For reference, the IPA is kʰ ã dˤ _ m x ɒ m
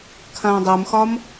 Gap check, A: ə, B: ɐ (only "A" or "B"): B